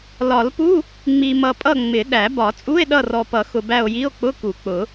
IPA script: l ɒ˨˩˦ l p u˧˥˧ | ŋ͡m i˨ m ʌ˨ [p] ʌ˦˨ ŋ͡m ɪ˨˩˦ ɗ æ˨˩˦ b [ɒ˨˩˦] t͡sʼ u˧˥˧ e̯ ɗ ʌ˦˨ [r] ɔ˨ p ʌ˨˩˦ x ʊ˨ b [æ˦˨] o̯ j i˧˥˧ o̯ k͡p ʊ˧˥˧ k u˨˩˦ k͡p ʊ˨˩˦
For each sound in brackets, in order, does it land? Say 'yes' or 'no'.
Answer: no, yes, yes, yes

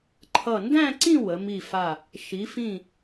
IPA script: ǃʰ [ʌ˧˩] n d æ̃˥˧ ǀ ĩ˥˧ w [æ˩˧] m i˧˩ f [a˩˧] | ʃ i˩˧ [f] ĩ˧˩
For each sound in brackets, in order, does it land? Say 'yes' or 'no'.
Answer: yes, no, no, yes

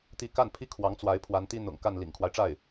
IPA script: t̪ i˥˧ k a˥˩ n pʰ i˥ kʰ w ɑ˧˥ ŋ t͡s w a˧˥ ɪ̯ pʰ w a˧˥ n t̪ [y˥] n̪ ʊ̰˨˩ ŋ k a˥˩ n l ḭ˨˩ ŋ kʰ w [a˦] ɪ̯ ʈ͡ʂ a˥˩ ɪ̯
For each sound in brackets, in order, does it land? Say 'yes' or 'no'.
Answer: no, yes

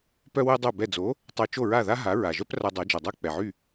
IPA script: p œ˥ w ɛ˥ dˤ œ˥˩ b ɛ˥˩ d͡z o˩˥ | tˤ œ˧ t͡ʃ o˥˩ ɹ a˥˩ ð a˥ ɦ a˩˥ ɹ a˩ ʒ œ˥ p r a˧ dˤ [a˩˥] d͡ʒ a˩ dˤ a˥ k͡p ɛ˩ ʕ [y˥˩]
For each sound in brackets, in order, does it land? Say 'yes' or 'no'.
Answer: yes, yes

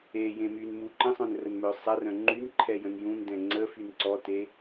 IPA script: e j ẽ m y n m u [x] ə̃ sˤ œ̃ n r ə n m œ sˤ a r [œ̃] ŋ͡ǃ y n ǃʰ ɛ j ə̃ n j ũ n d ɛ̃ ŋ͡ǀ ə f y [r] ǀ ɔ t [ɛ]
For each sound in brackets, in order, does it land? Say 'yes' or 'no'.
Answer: no, yes, no, no

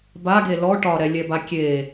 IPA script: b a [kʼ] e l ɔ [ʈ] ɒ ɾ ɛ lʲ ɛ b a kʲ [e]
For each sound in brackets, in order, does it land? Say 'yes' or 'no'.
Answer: no, yes, yes

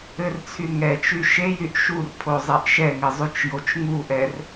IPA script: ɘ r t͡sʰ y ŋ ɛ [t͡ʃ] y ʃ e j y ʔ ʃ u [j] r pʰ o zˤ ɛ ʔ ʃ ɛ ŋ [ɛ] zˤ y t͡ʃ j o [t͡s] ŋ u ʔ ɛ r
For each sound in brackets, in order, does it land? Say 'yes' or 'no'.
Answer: yes, no, no, no

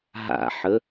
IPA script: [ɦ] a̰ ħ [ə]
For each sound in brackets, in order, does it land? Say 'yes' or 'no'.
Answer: yes, yes

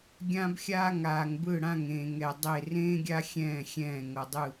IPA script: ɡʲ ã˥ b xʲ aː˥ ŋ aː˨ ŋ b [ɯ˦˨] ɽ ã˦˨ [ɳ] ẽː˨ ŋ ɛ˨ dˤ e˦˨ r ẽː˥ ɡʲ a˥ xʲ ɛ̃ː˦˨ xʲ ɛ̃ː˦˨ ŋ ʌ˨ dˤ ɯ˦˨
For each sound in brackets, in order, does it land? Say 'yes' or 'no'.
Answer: yes, no

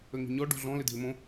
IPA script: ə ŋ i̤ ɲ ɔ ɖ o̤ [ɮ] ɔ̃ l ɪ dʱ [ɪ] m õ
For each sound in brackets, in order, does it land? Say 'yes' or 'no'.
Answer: yes, yes

